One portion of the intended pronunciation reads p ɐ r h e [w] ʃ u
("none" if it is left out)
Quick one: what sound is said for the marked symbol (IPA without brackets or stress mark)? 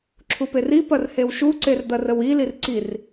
w